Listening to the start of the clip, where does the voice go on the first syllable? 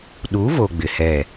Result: rising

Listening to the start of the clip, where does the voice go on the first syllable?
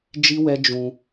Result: high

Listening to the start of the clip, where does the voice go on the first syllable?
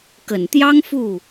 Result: low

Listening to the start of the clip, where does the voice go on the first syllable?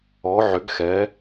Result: rising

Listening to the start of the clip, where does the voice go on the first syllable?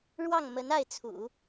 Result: falling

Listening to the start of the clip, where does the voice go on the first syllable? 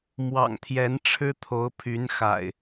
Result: low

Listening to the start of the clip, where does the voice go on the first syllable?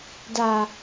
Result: low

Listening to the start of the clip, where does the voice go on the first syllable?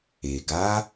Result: low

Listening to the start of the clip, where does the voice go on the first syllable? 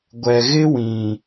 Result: low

